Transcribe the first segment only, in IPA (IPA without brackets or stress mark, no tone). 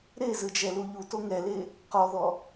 ɾ